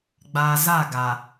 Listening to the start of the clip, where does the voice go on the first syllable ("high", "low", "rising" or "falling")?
low